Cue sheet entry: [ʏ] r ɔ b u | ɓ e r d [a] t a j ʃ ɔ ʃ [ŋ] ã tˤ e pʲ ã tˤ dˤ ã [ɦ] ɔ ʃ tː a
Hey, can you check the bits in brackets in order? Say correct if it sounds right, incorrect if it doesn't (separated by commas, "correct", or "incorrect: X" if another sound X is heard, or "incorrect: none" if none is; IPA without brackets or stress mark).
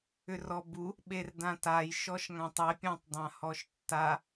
correct, incorrect: ã, correct, incorrect: h